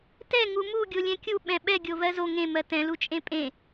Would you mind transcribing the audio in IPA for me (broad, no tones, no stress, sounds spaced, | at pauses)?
t ɛ ŋ u m u ɡʲ o lʲ ɛ̃ kʲ u ɓ ɛ̃ ɓ ɛ ɡʲ o v ɜ z o ŋ ẽ m ɜ t ɛ̃ l u t͡ʃʼ ẽ pʼ ẽ